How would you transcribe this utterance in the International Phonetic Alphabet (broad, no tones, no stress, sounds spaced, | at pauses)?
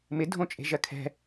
m ɪ dʱ õ t͡ʃʼ e̤ ʒ ɜ kʰ ɛ̤